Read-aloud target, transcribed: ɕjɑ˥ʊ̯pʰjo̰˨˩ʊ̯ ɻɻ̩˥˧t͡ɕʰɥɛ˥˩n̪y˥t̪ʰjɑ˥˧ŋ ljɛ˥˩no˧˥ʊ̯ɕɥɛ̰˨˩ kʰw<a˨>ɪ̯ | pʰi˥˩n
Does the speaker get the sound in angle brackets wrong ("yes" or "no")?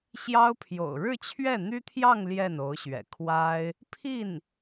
yes